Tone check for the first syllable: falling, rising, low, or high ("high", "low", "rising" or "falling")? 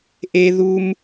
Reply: high